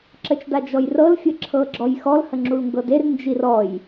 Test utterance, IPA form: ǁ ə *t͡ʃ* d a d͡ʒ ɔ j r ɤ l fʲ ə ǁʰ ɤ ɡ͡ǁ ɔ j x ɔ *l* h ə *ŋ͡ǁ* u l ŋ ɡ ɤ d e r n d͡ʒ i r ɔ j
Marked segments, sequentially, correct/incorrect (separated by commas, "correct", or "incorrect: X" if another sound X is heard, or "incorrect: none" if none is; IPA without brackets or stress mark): correct, correct, correct